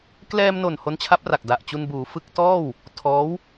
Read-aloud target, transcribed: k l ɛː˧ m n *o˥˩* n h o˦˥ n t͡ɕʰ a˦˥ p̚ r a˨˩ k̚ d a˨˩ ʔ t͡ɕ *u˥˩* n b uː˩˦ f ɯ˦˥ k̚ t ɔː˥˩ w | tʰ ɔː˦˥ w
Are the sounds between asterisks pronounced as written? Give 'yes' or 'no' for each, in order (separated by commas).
no, no